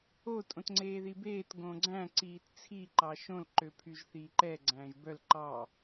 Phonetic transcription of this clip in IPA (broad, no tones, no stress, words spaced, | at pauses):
o tʼõtŋ͡ǀeːðibeːt ɡõɡ͡ǀæ̃ ǀiːtt͡sʰi ǃɑʃõl ǃøpʰyʒθiːǃɛ ɡ͡ǀæ̃ːʒbœl ǃɑ